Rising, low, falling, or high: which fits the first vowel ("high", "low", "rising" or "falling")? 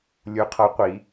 rising